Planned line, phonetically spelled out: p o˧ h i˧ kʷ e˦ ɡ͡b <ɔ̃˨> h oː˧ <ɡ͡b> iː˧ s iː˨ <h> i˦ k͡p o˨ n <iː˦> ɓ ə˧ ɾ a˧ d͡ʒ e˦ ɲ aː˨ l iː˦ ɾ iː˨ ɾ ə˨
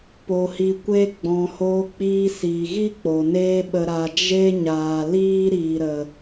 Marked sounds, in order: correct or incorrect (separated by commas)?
correct, incorrect, incorrect, incorrect